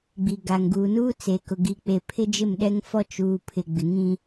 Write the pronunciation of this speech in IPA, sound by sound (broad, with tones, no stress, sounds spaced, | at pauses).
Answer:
ɡ͡b i˨ ɡ a˨ ŋ ɡ uː˨ n uː˦ t͡s e˨ k ʊ˨ ɡ i˨ k͡p e˨ pʰ ɪ˦ d͡ʒ ɪ˦˨ m ɗ ɛ˦ ŋ f ɔ˦ t͡ʃ uː˨ pʰ ɪ˨ ɡ͡b ɪ˨ ŋ ĩ˦